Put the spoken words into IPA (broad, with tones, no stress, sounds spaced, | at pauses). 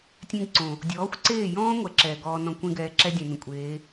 tʲ ẽ˦ ɡ ǀ õ˨ | dʲ ɔː˨˦ xʷ ǀ eː˦˨ j ɔ̃ː˦ ŋʷ ɛ˦˨ ǁ ɛː˨ ɡ ɔː˧ n ɔ̃˧ kʷ ẽ˦ ɡ ɛː˧ ǁ ɛ˦ dʲ ẽ˨ n ə̃˨ kʷʼ eː˨˦